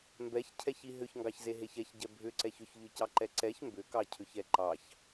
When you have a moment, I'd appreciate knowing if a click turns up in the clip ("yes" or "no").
yes